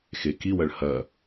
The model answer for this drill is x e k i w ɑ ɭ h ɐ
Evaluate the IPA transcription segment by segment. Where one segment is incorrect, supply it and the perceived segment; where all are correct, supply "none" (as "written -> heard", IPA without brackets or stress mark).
ɑ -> ɐ